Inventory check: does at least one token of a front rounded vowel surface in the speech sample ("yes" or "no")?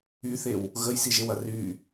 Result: yes